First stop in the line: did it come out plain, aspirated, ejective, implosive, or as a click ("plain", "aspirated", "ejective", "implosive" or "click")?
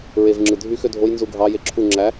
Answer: click